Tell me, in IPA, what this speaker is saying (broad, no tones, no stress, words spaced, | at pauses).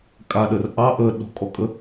kʼaɗər ʔɑ ʔə ɗɔ̤kʼɔkʼə